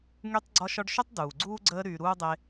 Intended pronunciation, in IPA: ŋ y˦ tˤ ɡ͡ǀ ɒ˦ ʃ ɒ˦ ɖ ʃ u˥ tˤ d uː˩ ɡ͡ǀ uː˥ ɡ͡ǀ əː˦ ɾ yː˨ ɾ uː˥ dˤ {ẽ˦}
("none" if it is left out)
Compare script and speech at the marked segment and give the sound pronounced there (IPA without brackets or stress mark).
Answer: e˦